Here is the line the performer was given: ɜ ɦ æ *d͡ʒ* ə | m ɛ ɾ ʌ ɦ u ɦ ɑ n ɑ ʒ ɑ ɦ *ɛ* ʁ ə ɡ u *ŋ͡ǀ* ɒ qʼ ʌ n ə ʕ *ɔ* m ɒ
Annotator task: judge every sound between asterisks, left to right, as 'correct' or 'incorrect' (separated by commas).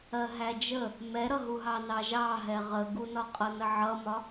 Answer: correct, correct, incorrect, incorrect